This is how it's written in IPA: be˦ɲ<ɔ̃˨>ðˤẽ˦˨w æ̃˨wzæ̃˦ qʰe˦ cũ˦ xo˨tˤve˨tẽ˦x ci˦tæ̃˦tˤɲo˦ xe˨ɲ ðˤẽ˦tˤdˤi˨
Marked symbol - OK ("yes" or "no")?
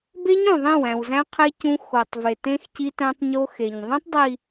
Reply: no